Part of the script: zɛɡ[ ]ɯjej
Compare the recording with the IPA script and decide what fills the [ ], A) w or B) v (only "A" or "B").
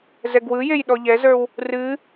A